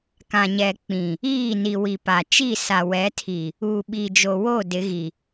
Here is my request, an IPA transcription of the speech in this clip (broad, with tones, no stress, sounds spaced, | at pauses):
k ã˨ ɲ ɛ˨ k͡p ĩ˨ | iː˦˨ n i˨ w i˨ p a˨ t͡ʃ i˦˨ s a˨ w ɛ˨˦ tʰ i˨ | uː˨ ɓ iː˨ d͡ʒ o˨ w o˦˨ d ɪ˨˦ ɣ i˨